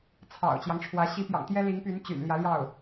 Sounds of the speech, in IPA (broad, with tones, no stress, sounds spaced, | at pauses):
t͡sʰ ɑ̰˨˩ ʊ̯ t͡ɕ j ɑ˦ ŋ ʈ͡ʂʰ w ä˧˥ ɕ i˧˥ p j ɑ̰˨˩ ŋ t̪ j ɛ˥ l i˧˥ ŋ p y˧˥ n t͡ɕ y̰˨˩ n l j ä˧˥ l j ɑ˥˩ ʊ̯